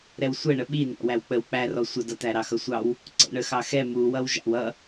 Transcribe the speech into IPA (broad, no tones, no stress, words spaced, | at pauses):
ɾɛwsʷɛɳə ɓinɑ̰ wæwk͡pəw k͡pærɔ sʷədʌtæ ɾɑxʌsʷɑw | ǀɛ̰ɳəxɑxɛ muwʌw ʒɑ̰wʌ